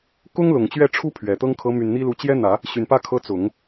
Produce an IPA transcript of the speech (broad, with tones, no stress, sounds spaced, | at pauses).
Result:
k ʊ˥ ŋ l ʊ˨˩ ŋ t͡ɕ ɥ ɛ˥˩ ʈ͡ʂʰ u˥ pʰ ɥ ɛ˨˩ t̪ ɤ˥ ŋ kʰ ɤ˧˥ m y˨˩ n n̪ i˥ l u˧˥ t͡ɕ j ɛ˥ n̪ ä˨˩˦ | ɕ y˨˩ n p ä˥˩ kʰ ɤ˧˥ t͡s ʊ˨˩˦ ŋ